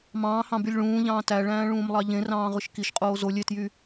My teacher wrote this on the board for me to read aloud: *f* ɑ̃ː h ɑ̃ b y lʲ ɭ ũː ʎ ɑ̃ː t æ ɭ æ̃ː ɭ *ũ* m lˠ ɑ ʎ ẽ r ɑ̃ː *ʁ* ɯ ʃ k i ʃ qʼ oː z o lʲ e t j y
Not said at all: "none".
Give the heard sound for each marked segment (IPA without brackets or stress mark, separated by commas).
m, ũː, ʁ